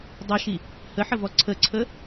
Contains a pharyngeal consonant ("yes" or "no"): yes